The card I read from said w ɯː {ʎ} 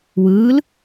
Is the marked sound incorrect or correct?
incorrect